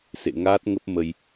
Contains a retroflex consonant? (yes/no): no